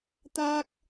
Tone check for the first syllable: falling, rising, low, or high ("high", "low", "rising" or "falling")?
high